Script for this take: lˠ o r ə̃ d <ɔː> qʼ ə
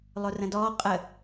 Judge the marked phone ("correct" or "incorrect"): correct